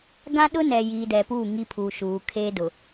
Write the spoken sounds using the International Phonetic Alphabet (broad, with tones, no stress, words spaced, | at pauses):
ɡã˦ɗʊ˦ nɛ˨jiː˨dɛ˨puː˦˨ ŋi˦pʰuː˨ʃuː˨ kʰe˦dʊ˨